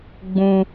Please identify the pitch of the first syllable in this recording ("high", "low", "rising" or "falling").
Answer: high